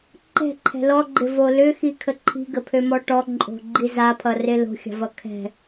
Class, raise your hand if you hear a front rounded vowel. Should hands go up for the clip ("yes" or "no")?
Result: yes